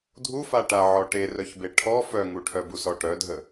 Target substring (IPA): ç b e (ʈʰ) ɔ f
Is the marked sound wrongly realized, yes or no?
no